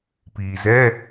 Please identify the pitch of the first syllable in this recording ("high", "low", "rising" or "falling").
low